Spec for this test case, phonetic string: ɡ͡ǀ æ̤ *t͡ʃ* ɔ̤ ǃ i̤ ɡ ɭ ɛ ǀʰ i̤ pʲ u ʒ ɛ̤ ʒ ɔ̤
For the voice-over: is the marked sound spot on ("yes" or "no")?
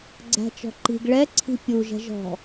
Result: yes